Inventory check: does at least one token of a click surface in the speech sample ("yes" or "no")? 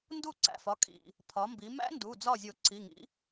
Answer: yes